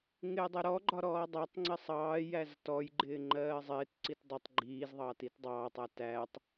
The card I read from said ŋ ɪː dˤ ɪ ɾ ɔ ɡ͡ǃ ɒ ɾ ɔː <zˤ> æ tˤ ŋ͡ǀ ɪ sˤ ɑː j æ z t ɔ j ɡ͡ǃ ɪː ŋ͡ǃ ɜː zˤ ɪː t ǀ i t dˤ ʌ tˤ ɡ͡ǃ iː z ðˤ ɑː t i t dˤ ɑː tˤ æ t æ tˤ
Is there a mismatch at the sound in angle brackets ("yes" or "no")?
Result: yes